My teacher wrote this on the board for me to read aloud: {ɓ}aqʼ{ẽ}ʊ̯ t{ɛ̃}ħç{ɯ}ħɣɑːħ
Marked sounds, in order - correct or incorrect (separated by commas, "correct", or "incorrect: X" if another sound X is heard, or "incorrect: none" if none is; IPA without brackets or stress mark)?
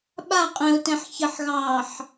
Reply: correct, correct, correct, incorrect: ə